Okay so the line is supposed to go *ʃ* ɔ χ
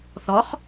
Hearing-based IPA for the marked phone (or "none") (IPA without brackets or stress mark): θ